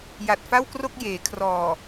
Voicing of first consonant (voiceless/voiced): voiced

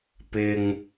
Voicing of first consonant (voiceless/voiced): voiceless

